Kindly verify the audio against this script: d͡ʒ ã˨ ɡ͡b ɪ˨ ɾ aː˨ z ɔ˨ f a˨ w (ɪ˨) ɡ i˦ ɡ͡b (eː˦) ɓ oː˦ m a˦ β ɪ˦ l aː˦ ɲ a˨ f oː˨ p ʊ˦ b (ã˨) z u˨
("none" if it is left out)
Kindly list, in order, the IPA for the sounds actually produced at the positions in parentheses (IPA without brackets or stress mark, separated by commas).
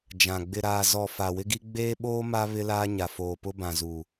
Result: ɪ˦, eː˦, ã˨